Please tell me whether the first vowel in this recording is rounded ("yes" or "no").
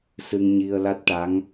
no